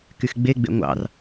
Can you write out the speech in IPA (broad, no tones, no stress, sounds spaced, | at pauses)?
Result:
k y x ɡ͡b e ɡ͡b ḛ ŋʷ ɑ̰ r